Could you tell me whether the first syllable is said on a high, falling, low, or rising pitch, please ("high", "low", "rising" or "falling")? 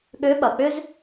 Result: rising